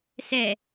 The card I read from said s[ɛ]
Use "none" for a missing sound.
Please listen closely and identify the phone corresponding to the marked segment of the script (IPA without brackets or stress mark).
ɛ